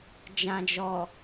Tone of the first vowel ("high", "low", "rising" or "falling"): low